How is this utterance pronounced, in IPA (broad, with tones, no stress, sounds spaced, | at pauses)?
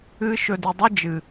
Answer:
ɨ˧ ʃ ɵ˧ d i˨ dˤ ɨ˦ d͡ʒ ɨ˨